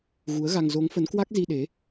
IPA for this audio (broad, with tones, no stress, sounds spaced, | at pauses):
ɣ u˨˦ ə̯ ɣ a˧ ŋ z o˨˦ ŋ f ə˨˦ n k w a˦˥ k̚ z i˧ ɗ e˨˦